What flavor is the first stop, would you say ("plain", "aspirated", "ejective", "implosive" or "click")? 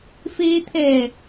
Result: aspirated